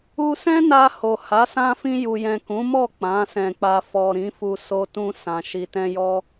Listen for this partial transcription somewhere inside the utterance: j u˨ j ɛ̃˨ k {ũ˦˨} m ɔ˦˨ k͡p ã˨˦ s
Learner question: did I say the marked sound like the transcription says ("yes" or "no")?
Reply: no